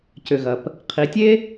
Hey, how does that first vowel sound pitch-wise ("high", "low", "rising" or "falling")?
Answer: low